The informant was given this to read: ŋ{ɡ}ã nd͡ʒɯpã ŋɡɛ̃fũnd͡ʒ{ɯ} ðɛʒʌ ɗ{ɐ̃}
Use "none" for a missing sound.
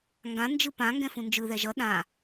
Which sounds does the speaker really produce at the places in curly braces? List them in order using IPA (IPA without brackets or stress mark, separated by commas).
ɡ, ɯ, ã